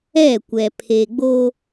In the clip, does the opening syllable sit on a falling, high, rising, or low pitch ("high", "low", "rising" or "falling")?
falling